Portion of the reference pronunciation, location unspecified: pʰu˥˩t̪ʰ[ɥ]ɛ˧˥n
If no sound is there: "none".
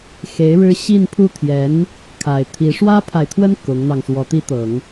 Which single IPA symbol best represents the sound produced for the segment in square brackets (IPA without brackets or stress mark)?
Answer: j